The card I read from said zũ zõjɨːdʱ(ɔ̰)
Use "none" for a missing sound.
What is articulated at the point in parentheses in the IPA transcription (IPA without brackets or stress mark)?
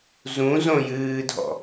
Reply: ɔ̰